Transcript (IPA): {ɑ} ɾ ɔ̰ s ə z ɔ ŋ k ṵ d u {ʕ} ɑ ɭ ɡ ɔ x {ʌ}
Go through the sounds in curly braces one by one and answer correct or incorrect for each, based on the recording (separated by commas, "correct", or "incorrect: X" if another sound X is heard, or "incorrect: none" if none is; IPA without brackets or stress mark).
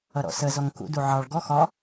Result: incorrect: ʌ, correct, incorrect: ɒ